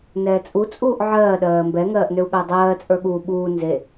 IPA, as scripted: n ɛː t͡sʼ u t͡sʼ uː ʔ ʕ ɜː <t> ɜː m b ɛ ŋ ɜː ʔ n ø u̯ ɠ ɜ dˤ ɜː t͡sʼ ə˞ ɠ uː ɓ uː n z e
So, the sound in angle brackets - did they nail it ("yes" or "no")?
no